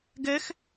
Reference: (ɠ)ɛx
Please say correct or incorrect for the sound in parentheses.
incorrect